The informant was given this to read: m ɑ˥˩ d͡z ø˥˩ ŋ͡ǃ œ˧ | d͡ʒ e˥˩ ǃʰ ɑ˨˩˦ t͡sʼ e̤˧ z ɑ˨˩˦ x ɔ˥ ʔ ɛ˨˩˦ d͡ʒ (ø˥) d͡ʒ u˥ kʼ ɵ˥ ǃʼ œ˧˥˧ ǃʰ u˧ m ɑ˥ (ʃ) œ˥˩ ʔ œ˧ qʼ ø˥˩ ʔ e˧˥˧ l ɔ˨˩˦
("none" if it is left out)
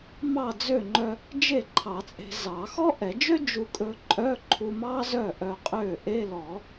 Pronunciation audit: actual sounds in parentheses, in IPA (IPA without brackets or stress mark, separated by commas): ø˥, z